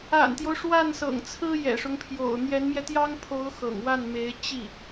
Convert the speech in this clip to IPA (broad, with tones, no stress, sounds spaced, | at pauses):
a̰˨˩ n t̪ j o˦ ʊ̯ ʂ w a˥˩ n s ɤ̰˨˩ ŋ t͡sʰ ɹ̩˥ j ɛ̰˨˩ ʂ ʊ˦ ŋ pʰ j o̰˨˩ ʊ̯ n̪ j ɛ˧˥ n m j ɛ˧ t̪ j ɑ˥ ŋ pʰ o˧˥ ʊ̯ x ɤ̰˨˩ ŋ w a˥˩ n m e˧˥ ɪ̯ t͡ɕ i˥˩